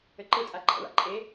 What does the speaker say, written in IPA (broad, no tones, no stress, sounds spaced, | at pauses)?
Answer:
ɘ ǃ ɯ tʼ a ɡ͡ǃ a̰ ɭ a̰ ǃʼ e